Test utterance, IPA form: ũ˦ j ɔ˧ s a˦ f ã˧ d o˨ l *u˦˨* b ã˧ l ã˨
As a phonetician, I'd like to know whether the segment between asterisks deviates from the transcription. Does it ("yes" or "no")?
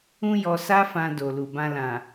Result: yes